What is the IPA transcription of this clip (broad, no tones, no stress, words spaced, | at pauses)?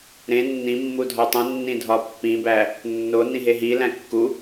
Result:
ɾẽ nːĩmːu dʱɒtˤũnːĩ dʱɒpːĩbæ | nːo nĩɦeɦilæ̃ kːu